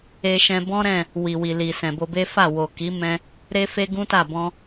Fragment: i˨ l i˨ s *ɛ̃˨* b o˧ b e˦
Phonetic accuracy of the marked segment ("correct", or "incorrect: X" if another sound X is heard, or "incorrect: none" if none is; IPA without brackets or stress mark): correct